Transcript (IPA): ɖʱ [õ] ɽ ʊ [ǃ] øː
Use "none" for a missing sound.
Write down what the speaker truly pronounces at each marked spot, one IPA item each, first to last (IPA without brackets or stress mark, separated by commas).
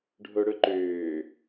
o, ǃ